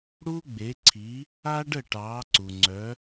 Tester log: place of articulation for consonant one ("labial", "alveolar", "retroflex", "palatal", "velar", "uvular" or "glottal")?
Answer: retroflex